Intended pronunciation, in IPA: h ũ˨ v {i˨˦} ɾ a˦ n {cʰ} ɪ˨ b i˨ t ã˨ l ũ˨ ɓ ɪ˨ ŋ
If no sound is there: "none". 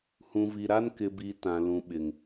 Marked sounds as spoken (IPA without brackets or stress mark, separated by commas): i˨, k